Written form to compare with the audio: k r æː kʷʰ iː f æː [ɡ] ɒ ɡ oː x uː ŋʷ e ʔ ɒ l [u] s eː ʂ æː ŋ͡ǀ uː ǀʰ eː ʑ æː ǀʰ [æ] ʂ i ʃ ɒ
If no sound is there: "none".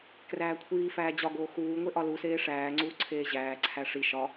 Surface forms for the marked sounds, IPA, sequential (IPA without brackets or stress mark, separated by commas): d͡ʑ, u, æ